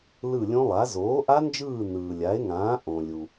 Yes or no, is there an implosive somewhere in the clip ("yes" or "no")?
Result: no